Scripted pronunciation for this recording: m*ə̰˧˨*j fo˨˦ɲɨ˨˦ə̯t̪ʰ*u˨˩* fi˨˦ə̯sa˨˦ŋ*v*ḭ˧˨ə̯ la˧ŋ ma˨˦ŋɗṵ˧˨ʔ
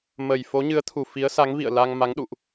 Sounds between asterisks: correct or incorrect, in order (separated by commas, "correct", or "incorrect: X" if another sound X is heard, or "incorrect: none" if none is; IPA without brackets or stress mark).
incorrect: ə˨˩, correct, correct